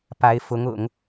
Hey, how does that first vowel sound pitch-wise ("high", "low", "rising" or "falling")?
rising